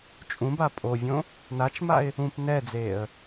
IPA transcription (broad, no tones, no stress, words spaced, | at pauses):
t͡ʃʼũba pʼovʲõ | nat͡ʃmaɪ̯ | ũp nɛd͡zeːə̯